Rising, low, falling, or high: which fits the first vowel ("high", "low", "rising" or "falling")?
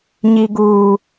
low